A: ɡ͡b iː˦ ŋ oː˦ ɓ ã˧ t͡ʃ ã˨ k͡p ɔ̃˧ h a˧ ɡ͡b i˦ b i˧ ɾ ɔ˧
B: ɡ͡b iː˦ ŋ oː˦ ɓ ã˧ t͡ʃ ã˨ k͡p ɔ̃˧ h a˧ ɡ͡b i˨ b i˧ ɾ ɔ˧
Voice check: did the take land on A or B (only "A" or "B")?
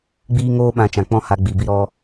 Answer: B